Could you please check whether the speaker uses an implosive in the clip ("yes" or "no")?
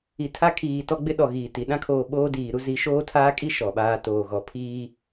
yes